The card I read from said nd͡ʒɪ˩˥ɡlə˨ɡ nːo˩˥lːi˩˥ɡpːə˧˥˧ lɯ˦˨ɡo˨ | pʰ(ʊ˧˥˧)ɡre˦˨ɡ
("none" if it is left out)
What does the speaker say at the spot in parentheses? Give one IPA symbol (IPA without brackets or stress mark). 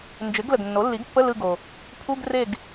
u˧˥˧